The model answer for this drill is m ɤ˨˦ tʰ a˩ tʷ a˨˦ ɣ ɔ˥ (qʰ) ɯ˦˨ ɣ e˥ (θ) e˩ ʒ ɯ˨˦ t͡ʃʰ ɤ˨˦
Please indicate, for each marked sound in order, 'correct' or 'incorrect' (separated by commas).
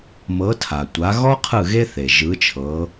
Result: correct, correct